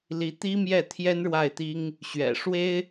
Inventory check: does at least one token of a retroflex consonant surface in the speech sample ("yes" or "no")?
yes